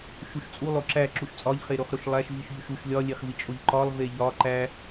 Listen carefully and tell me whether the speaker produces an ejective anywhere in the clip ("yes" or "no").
yes